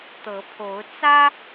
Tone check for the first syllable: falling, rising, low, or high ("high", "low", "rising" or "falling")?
rising